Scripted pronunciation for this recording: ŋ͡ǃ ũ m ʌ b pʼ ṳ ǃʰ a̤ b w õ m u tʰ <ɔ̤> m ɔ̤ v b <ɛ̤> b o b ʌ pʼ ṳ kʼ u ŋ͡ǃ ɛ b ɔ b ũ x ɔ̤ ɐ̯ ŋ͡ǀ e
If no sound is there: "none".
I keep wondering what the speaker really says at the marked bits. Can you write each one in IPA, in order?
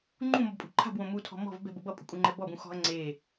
ɔ̤, ɛ̤

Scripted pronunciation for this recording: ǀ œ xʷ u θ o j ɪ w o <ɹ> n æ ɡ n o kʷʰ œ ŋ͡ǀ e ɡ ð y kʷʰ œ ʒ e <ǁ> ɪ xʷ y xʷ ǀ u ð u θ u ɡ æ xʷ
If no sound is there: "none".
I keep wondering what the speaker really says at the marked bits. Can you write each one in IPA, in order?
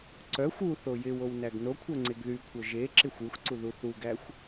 w, ǁ

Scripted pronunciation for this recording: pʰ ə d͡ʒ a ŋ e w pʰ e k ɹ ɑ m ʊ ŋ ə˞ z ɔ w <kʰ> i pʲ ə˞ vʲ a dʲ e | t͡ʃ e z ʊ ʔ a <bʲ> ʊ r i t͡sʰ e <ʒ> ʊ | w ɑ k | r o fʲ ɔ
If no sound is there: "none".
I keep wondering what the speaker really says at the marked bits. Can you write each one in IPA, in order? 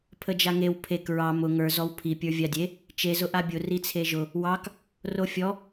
pʰ, bʲ, ʒ

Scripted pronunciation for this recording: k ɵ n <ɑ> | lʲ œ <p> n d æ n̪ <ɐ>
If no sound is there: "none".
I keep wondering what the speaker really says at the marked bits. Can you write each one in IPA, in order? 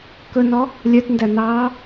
ɔ, t, ɑ

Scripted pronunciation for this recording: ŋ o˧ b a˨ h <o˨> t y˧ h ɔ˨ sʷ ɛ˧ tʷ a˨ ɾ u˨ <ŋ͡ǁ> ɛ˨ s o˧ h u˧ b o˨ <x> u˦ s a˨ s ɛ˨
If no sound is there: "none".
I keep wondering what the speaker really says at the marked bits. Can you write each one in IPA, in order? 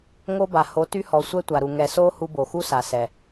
o˨˦, ŋ, x

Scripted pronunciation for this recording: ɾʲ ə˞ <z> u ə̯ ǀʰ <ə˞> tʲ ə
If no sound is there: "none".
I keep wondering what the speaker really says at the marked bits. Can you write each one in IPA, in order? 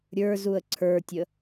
z, ə˞

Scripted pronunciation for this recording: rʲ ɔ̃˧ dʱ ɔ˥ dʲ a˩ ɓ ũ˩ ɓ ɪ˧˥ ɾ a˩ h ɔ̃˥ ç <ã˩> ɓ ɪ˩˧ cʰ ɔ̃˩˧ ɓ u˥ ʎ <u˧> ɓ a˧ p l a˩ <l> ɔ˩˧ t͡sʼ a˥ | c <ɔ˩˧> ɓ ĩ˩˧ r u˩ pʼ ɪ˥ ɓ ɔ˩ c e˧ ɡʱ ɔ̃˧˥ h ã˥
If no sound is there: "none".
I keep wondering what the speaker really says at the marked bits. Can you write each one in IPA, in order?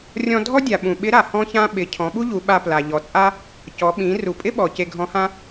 ã˥, u˩˧, ʎ, ɔ˩˧

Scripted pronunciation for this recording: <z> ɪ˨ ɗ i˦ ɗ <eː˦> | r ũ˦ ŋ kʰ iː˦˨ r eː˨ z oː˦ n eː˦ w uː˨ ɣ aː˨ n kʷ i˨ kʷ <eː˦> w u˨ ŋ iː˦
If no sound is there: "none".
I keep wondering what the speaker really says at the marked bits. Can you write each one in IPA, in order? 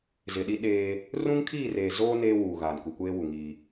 z, eː˦, eː˦

